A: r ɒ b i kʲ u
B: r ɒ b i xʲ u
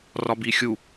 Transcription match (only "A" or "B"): B